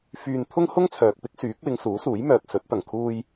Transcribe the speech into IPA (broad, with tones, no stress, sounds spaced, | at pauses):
f yː˧ n t̪ʰ ʊ˥ ŋ h ʊ˥ ŋ t͡sʰ œː˨ k̚ p ɪ˥ k̚ s yː˨˥ k̚ w ɪ˨˧ ŋ s uː˨˥ s uː˨˥ j m œː˨ k̚ s ɵ˨˥ t̚ t̪ ɐ˨˩ ŋ kʰ uː˧ j